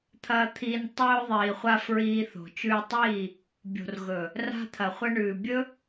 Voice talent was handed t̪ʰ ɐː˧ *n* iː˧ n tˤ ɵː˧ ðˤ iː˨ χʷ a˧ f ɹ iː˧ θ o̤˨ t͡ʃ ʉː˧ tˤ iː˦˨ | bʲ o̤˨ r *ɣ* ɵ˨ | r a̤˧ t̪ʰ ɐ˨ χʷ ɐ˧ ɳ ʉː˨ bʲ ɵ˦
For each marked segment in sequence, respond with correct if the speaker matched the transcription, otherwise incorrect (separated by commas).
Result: incorrect, correct